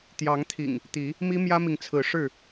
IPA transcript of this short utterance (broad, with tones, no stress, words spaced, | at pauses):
t̪jɑ˨˦ŋt̪ʰḭ˨˩ŋ | t̪i˨˦ | mi˦mjä˦mi˨ŋt͡sʰɹ̩˨˦ ʂɻ̩˥˨